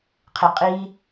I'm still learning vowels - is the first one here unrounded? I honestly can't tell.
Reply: yes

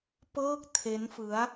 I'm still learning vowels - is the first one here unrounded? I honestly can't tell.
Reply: yes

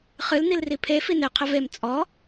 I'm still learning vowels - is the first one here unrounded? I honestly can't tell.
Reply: yes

